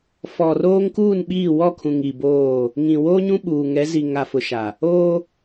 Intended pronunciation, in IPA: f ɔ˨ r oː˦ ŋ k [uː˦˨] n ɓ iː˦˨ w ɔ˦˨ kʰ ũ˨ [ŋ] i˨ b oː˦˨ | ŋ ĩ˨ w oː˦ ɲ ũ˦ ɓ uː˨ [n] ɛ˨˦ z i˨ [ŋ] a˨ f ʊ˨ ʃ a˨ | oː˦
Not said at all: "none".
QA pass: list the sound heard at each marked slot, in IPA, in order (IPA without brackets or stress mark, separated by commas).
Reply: uː˦˨, ŋ, ŋ, ŋ